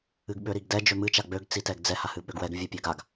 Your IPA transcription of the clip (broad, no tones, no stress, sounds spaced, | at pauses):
ɨ ɡ ɓ ø ɾ i ɡ d ɛ d͡ʒ ø m ɨ t͡ʃ a ɡ͡b ø ɡ t͡s i t ɛ ɡ d͡z ɛ h a h ɨ ɓ ø ɡ w ɛ ɡ vʲ ɛ pʲ ø ɡ a ɡ